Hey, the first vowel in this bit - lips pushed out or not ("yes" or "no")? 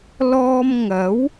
yes